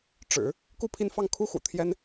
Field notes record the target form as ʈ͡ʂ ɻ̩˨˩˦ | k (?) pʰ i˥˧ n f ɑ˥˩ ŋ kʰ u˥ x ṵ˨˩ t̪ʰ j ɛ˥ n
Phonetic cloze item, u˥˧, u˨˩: u˥˧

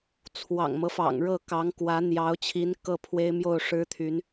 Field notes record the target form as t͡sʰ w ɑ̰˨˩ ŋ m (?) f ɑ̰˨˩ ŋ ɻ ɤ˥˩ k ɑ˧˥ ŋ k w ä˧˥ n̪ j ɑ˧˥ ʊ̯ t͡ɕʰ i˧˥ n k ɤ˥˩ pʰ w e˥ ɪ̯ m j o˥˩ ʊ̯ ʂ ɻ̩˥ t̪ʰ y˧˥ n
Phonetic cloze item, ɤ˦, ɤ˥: ɤ˦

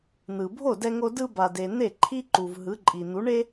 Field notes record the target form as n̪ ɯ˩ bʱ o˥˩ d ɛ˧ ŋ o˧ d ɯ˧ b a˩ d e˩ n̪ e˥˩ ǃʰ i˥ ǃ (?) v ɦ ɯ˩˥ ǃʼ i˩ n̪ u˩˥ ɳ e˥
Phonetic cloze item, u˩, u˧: u˩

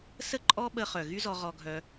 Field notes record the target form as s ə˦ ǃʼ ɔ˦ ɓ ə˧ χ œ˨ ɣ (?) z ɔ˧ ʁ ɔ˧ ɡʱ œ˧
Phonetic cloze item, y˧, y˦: y˦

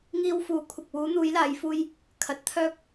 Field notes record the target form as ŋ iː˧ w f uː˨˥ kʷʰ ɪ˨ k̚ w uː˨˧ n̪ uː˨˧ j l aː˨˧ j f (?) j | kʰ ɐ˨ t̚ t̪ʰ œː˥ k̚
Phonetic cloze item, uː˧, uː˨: uː˧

